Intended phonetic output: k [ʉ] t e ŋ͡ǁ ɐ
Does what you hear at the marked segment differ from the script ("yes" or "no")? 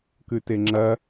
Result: no